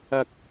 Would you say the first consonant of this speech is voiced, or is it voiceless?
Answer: voiceless